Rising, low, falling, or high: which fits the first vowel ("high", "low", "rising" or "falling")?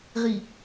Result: low